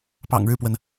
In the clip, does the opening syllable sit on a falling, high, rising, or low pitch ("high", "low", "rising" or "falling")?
low